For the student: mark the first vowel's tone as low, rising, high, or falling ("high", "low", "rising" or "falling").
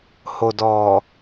low